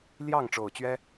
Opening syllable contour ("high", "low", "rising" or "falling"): falling